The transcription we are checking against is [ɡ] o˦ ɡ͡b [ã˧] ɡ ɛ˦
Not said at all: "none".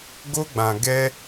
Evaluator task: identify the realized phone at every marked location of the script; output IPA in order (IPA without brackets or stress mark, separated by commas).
ɡ, ã˧